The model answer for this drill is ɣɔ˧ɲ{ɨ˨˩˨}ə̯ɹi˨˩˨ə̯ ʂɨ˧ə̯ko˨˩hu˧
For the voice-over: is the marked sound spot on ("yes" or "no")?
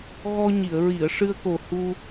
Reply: no